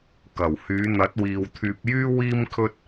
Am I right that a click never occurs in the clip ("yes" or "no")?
yes